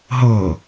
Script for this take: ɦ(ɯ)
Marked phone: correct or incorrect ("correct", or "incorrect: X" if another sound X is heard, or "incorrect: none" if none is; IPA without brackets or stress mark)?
incorrect: ɤ